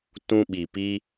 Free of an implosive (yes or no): no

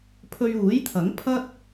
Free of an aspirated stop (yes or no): no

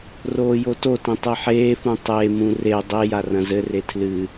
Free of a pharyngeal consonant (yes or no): no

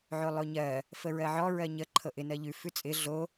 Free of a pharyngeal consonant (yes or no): no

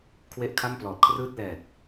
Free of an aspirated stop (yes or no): no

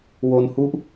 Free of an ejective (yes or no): yes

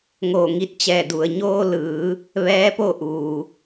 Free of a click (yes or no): yes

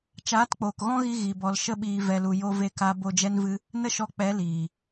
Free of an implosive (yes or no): no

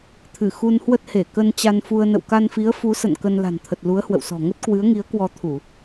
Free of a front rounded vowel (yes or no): yes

